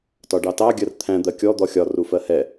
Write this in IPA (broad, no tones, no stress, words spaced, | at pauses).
tɒɖɑtɑ ɡʲɜrt̪ʰæ̃ d̪ɜkʲɔ d̪ɔxʲɒ rufɜhɛ